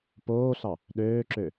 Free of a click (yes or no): no